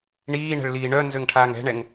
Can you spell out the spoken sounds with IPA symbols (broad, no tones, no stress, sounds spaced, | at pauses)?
ɳ iː ɳ ɛ̤ ɭ l iː ɳ œ n z ø ŋ ʈʰ aː ŋ ɛ̤ ɳ ɛ ŋ